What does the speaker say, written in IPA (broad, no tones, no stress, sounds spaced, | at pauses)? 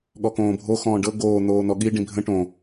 ɠ ɔ k õː bʱ o x ɔ̃ː ɖ ɤ ɡ oː n̪ oː n̪ ɔ ɠ i ɖ ĩ bʱ ə̃ ʈ õ